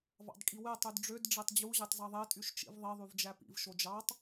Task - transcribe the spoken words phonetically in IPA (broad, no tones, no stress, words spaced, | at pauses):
vɑ̰dkʼiwe tˤydɖ͡ʐød ɖ͡ʐetˤd͡ʑu ʑetˤzɑðˤe tʼyʃt͡ʃḭvðˤi ðˤyvd͡ʒæpḭv ʃod͡ʒɑtˤ